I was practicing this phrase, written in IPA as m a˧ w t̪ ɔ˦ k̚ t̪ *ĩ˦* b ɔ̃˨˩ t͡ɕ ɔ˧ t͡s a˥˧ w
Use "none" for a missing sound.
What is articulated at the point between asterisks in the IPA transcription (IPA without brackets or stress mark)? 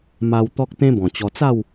ẽ˦